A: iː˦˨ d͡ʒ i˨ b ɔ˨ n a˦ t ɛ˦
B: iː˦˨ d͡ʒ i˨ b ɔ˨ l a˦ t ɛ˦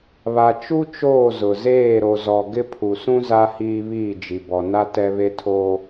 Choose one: A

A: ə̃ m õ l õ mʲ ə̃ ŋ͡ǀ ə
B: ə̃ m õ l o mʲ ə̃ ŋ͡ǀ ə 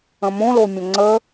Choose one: B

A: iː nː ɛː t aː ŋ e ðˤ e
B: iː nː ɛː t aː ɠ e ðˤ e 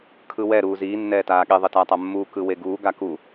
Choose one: B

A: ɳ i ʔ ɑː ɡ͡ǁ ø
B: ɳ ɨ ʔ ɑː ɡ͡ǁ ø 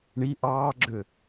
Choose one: A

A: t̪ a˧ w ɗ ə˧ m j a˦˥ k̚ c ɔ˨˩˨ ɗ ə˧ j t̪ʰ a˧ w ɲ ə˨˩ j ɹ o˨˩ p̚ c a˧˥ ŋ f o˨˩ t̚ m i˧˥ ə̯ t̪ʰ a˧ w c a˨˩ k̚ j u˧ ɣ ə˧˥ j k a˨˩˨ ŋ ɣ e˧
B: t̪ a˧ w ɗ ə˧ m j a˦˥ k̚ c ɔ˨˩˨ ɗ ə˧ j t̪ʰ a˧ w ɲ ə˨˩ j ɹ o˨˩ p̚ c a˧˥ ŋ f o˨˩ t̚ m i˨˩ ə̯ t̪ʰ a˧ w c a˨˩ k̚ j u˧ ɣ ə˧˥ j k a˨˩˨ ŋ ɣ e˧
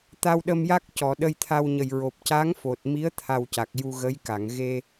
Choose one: A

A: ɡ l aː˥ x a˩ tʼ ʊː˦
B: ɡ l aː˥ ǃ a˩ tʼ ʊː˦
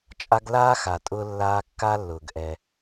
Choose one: A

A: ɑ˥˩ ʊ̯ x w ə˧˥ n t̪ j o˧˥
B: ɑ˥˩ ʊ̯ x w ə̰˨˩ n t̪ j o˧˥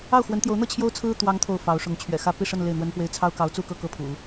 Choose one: A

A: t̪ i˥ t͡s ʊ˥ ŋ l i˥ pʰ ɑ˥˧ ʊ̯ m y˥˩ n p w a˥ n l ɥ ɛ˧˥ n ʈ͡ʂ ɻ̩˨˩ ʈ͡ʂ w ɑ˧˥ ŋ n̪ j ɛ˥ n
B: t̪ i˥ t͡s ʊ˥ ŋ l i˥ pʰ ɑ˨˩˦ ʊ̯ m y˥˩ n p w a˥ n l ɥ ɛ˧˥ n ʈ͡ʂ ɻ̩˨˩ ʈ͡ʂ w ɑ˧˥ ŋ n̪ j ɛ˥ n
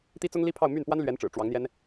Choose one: A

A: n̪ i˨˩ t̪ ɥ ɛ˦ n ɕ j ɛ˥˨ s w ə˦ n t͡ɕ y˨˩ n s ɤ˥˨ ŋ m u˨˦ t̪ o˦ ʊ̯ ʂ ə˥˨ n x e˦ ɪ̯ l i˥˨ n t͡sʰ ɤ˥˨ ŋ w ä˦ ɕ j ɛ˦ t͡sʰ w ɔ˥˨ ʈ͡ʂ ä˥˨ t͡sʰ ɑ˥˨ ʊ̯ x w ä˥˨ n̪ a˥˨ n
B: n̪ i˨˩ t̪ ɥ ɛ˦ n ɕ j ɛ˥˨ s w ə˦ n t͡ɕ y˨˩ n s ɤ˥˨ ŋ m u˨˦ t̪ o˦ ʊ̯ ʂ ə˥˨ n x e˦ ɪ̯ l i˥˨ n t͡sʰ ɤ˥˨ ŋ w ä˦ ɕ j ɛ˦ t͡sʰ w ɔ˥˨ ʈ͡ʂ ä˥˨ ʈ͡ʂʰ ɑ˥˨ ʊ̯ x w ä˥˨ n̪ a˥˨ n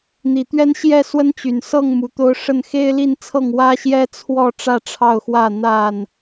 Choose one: B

